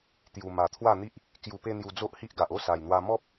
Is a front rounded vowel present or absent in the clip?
absent